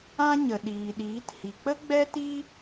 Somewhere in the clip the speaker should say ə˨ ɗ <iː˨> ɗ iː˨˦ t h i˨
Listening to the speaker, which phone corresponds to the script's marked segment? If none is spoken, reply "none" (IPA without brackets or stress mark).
iː˨